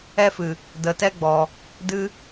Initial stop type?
plain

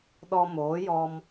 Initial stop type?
implosive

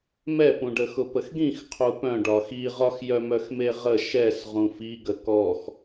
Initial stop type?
plain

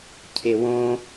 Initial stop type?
aspirated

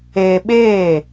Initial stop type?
implosive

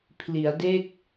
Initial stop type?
aspirated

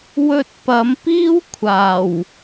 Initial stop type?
plain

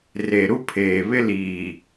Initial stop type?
aspirated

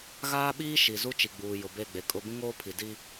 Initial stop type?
implosive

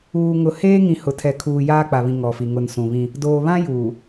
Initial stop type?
aspirated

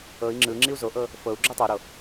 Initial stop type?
click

